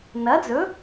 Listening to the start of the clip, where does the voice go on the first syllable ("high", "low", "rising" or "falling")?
rising